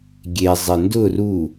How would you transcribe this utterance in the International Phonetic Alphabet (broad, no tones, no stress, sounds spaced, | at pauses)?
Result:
ɡʲ e zˤ e n d ʊ r u